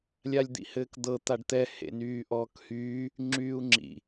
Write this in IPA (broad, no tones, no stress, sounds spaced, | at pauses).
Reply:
lʲ a lʲ d̪ ḭ h ɘː k d̪ ɤ t̪ a ɖ t̪ ɛ h ḛ n yː ʔ ɔː k h yː | ŋ͡ǁ yː u̯ ŋ͡ǁ ḭ